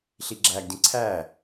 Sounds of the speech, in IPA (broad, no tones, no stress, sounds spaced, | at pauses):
ɬ i ɡ͡ǁ æ ɡ d ĩ ǀʰ æ